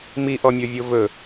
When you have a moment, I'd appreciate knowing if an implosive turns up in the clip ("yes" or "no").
no